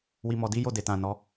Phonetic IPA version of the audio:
wi˧mɔ˧di˦ jo˦˨de˨tã˨ nɔ˨˦

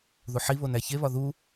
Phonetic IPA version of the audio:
ðuħiβon æçeβɒ ðu

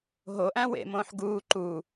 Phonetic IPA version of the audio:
ɦoʔæ̃ wḛmõːħ ɡuː ǃu

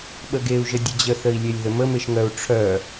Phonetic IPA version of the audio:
ɓəɡeu̯ʒə dʲəd͡ʑəθəi̯lʲelʲ ðəməmeʃŋœu̯ ʈ͡ʂʰœ

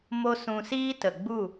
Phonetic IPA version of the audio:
mo˦ sũ˧ siː˦tə˨ ɡ͡bu˦˨

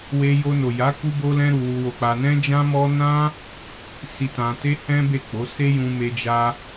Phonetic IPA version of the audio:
we˧jo˧no˨ja˨˦ ku˦bo˦lɛ̃˦ɾu˧ wu˧wo˧k͡pa˧nɛ̃˦ d͡ʒã˦mɔ˦ nã˦ | si˧tã˧te˦ hɛ̃˦be˦˨k͡po˨˦ se˦jũ˧ me˧ d͡ʒa˦

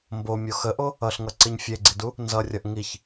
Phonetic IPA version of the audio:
mbomʲo xəʔo | ʌɬŋʌǀiɲ fʲeɡ͡ǀidu | nzʌrʲʌʔ ŋiç

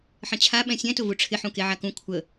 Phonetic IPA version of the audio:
ħə̃t͡ɕʰa ɓɛ̃sʲɛ̃ tʊvuʈ͡ʂʰɪ ħũkeʕakũ kʷʰə

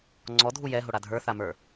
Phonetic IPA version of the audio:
ŋ͡ǀɔ dʱujɛɦoɽa dʱə˞θamə˞

